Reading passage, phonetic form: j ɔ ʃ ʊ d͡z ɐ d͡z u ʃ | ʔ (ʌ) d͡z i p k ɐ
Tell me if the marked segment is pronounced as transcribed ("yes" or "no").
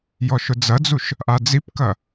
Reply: no